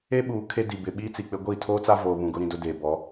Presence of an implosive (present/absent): present